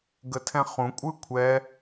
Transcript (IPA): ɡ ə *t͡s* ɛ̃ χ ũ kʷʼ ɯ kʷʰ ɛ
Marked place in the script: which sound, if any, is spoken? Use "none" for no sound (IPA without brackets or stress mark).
tʰ